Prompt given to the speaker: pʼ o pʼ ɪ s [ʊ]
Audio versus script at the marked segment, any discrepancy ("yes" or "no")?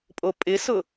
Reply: no